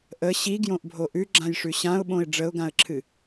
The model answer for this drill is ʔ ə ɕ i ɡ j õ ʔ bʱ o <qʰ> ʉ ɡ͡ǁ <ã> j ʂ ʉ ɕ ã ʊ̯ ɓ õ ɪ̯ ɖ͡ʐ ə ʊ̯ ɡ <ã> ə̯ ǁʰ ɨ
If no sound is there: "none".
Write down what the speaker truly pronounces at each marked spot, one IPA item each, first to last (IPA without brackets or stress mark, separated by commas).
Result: ʔ, ã, ã